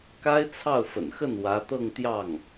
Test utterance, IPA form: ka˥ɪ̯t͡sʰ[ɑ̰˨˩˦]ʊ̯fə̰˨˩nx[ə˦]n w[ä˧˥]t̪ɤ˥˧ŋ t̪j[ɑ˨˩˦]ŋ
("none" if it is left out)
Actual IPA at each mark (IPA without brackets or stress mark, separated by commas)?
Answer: ɑ˥˩, ə˥˩, ä˧˥, ɑ˥˩